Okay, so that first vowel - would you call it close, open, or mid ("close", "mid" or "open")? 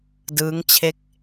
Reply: close